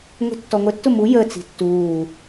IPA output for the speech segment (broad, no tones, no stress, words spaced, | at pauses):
ŋʷi̤tːɔŋʷətːʊ mu jə t͡si̤tːuː